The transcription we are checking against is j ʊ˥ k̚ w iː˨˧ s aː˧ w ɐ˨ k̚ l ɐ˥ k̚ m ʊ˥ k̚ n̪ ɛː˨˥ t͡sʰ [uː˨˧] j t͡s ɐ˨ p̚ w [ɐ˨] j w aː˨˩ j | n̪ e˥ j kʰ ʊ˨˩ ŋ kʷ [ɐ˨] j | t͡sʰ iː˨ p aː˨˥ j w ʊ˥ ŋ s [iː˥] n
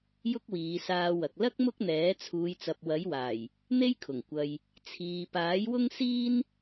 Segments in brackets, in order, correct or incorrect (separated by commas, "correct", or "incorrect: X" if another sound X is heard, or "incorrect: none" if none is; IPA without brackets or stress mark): correct, incorrect: ɐ˨˥, correct, correct